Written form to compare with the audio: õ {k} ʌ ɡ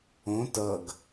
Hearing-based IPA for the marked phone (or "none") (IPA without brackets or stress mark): t